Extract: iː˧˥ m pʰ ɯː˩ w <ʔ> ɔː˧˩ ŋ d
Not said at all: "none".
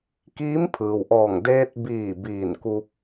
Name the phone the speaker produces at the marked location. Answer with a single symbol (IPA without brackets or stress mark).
ʔ